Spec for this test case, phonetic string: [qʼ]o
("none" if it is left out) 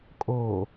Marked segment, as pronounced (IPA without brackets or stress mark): kʼ